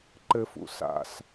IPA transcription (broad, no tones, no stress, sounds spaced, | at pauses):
ǃ ɘ f ṵ s a̰ s